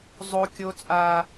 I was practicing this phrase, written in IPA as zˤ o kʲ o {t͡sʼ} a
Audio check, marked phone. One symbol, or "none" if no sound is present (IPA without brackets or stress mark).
t͡sʼ